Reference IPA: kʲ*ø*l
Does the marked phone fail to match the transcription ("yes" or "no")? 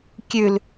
yes